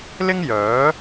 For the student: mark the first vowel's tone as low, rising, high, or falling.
high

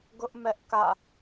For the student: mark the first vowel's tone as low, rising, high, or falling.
high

